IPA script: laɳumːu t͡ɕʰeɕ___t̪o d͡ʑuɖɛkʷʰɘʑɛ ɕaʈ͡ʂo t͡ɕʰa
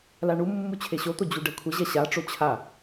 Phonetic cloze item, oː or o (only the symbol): o